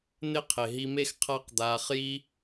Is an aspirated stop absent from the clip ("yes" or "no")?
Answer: no